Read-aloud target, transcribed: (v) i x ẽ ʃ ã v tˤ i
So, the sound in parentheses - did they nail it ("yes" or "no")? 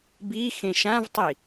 no